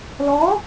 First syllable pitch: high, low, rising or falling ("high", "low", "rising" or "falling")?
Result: rising